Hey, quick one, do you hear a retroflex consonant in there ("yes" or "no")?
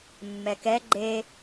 no